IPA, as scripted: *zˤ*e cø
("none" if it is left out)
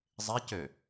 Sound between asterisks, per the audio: zˤ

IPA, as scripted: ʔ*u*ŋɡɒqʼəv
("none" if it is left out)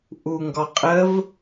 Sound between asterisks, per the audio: u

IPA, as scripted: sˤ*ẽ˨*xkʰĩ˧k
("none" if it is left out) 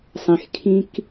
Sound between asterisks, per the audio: ẽ˨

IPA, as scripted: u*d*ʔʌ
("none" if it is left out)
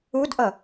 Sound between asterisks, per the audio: d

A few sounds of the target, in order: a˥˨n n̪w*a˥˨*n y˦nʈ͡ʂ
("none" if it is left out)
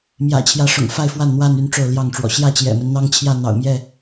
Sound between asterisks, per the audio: a˥˨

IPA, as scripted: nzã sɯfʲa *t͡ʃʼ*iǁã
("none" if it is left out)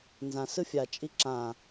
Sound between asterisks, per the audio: t͡ʃʼ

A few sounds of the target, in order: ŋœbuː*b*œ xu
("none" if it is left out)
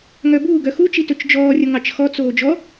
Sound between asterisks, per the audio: ɡ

